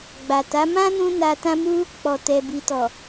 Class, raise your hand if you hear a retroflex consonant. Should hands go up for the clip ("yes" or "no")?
no